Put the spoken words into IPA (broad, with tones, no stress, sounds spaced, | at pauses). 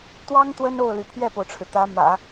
t̪ w ɑ˥ ŋ t̪ w ə˥ n o˥˩ ʊ̯ l y˩ pʰ ɥ ɛ˥˩ p o˩ ʊ̯ ʈ͡ʂʰ ɻ̩˩ t̪ ä˧˥ m ä̰˨˩˦